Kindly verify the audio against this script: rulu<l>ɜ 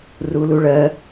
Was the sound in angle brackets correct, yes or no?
no